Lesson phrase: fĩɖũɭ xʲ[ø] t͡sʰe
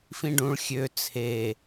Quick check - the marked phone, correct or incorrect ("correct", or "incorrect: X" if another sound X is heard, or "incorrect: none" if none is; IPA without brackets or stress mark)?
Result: correct